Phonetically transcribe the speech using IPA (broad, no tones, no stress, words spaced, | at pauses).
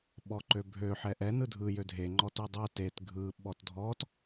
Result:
ɓɔǃøbʱø ħɛʔɛ nɯdʱɯ jødʱe ŋ͡ǃɔtødˤø tet ɡʱɯ ɓɔtdʱɔt